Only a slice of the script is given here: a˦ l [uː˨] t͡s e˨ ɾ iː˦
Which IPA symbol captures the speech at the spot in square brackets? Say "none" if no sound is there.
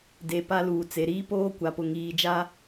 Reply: uː˨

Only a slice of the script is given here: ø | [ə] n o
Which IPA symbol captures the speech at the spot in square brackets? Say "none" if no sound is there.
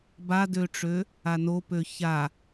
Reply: a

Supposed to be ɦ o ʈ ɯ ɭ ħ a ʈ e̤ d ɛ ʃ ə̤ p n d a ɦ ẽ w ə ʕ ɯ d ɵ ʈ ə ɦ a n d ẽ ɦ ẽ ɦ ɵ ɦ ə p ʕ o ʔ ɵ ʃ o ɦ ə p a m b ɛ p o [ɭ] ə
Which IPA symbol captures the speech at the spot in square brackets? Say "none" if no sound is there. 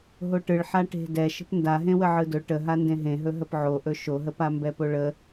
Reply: ɭ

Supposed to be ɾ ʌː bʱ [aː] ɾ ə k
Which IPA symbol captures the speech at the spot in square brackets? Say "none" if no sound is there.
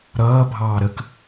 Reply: ɑː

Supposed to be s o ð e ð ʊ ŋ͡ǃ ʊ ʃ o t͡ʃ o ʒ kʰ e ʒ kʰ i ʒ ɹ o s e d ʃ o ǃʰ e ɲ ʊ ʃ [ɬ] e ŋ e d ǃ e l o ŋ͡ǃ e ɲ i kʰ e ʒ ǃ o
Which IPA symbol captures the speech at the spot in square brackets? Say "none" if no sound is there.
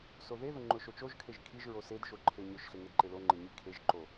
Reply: ɬ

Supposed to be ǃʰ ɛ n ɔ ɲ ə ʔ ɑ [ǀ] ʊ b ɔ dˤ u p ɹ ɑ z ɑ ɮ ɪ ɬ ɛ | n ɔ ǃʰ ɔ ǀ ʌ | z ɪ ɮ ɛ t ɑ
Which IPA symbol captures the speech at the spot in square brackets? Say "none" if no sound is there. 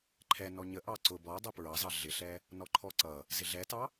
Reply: ǀ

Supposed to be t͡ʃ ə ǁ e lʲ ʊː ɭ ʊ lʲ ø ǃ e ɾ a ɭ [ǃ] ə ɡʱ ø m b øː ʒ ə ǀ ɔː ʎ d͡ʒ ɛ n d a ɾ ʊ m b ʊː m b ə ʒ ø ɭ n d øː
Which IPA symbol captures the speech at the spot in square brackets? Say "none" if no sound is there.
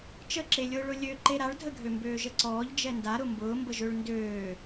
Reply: dʱ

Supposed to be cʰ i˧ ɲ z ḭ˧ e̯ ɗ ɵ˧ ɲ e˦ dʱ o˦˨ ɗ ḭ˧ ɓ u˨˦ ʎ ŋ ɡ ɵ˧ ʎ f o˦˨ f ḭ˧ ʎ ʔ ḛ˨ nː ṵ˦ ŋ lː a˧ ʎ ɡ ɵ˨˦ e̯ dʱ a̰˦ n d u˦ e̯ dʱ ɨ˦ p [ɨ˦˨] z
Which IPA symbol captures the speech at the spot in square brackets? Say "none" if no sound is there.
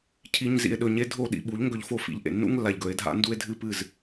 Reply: ɨ˦˨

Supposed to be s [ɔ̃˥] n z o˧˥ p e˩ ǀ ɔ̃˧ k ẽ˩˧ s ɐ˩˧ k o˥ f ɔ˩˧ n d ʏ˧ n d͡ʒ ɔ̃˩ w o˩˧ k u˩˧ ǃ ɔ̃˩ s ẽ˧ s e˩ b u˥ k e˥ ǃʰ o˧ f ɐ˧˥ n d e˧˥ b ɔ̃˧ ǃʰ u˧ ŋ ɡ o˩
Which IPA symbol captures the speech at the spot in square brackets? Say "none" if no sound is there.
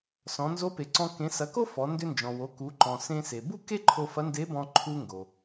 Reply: ɔ̃˩˧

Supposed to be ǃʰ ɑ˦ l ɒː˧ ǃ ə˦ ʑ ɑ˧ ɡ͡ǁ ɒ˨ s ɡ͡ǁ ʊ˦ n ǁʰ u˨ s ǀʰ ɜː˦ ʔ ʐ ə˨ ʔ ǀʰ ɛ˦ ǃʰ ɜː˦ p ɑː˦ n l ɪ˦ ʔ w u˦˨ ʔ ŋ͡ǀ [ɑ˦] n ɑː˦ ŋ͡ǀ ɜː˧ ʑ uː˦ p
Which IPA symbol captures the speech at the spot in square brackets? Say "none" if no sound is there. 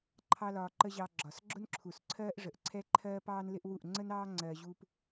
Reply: ə˦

